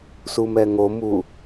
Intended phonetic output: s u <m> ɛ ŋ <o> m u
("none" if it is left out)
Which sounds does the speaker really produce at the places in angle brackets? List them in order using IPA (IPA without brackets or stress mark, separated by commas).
m, o